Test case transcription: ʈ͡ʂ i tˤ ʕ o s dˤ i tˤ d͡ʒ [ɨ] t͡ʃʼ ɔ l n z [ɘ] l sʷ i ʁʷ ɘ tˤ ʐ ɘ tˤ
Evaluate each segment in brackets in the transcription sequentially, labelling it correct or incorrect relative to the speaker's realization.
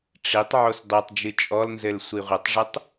correct, correct

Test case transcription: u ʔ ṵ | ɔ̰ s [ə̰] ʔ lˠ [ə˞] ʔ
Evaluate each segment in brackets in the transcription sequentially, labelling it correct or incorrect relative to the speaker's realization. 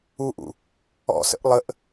correct, incorrect

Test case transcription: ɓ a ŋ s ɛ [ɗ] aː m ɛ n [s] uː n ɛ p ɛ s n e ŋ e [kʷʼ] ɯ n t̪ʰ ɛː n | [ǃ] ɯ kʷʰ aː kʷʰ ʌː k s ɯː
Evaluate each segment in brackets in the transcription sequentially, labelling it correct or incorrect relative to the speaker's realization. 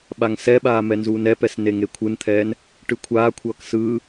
incorrect, incorrect, incorrect, incorrect

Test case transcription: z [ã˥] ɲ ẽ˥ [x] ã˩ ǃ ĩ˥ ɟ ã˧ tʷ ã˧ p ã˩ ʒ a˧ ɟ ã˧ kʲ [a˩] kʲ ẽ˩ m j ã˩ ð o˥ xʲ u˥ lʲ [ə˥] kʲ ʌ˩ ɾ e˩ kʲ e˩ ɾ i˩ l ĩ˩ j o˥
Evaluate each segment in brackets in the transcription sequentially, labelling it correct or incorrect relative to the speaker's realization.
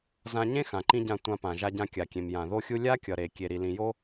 incorrect, correct, correct, incorrect

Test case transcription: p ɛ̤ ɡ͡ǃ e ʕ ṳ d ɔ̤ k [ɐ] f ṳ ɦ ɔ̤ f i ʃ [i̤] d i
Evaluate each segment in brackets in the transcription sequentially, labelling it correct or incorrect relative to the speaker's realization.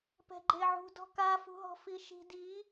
incorrect, correct

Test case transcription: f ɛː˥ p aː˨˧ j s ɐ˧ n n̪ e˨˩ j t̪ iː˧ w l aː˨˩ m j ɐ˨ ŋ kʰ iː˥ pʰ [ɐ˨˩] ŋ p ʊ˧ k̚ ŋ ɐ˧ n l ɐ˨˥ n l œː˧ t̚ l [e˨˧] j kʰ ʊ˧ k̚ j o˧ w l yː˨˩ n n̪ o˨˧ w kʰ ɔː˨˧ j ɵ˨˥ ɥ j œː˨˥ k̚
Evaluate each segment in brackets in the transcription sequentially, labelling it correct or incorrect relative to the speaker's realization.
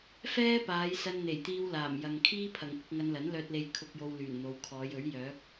correct, incorrect

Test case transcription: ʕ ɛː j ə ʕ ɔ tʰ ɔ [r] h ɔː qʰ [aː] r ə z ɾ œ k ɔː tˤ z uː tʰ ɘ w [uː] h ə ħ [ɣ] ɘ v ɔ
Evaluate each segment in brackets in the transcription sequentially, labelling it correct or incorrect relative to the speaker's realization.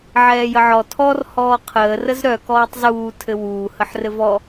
correct, incorrect, correct, incorrect

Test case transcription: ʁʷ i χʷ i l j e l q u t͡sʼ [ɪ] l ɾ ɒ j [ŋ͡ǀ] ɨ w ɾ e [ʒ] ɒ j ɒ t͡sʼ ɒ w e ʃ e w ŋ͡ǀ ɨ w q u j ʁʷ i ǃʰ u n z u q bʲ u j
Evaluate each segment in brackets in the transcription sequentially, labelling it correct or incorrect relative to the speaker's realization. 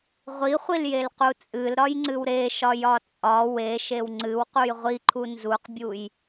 incorrect, correct, incorrect

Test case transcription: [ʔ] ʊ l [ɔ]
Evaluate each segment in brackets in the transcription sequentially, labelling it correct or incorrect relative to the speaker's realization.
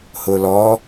incorrect, correct

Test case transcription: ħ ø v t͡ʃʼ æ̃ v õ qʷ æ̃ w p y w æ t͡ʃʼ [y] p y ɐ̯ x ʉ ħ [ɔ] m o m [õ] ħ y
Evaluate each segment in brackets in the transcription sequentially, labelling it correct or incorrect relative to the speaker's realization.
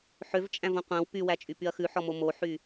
correct, correct, incorrect

